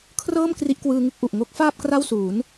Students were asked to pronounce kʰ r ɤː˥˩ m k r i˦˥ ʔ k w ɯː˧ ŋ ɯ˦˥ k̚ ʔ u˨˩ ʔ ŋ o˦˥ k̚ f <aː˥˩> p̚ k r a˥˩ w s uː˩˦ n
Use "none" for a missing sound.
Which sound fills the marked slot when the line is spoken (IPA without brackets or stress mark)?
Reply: aː˥˩